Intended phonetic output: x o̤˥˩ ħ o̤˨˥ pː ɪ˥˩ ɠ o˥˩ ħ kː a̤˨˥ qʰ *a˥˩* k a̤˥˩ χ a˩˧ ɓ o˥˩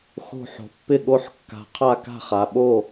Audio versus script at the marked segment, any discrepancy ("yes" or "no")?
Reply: no